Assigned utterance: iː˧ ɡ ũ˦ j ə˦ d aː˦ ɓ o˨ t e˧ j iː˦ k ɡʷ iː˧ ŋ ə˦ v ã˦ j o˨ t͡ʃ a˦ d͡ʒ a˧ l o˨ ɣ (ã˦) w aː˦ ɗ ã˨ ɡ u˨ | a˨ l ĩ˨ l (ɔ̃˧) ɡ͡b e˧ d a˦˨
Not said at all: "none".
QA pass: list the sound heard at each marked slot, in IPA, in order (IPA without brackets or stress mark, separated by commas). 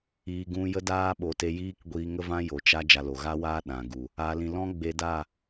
a˦, ɔ̃˦